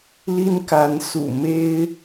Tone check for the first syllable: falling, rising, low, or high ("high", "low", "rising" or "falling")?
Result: high